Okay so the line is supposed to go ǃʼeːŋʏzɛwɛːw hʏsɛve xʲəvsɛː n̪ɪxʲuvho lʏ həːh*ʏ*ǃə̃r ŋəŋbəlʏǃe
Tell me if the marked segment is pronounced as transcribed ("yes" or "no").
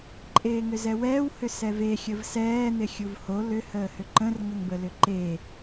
yes